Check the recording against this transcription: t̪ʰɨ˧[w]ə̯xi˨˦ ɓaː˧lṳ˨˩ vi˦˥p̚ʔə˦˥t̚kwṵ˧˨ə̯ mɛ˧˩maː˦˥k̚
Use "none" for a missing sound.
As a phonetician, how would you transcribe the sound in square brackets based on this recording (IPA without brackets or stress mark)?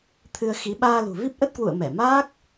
none